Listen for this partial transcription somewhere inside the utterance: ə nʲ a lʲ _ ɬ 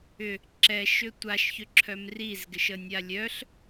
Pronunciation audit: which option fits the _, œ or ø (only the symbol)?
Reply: œ